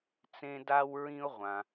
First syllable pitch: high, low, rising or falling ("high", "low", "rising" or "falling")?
high